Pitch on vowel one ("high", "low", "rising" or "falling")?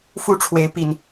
falling